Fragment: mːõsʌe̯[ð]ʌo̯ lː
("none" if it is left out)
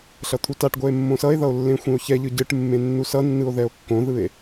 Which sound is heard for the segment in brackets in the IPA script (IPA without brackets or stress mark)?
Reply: ð